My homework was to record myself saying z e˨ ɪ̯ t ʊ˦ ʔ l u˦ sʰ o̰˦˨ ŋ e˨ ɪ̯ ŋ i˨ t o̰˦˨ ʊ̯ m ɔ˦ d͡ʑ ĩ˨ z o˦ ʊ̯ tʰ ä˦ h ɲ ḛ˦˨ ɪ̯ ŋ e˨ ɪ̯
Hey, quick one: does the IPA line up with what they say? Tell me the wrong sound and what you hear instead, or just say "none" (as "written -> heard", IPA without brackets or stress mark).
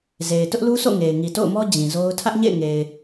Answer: h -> ʔ